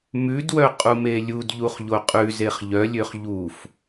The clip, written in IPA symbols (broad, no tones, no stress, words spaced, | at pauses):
mʉdwœqʼume lʲudʎuχʎo qʼʉzeχ ʎœlʲøχ ʎuf